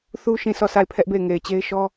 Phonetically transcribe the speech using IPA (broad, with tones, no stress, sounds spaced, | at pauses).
θ u˦ ʃ ĩ˦˨ sʰ ɔ˦˨ s a˦˨ ɪ̯ pʰ ɛ˦ ʔ b e˦˨ ɪ̯ ŋ e˨ ɪ̯ t͡ɕ e˦ ɪ̯ ʃ ɔ˦